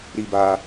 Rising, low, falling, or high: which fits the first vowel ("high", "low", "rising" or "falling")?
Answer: high